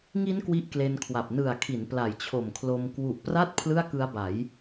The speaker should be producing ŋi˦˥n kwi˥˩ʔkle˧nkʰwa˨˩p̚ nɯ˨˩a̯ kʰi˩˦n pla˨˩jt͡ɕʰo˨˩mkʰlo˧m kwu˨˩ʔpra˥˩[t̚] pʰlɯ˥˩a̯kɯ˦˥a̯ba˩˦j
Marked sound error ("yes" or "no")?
no